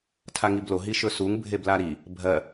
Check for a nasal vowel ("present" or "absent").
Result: absent